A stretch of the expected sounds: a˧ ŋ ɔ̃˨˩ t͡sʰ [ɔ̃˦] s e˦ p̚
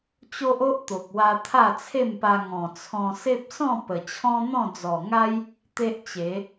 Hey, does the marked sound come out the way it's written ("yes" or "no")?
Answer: no